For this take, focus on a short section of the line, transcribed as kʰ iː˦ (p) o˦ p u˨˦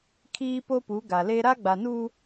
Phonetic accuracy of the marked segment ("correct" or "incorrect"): correct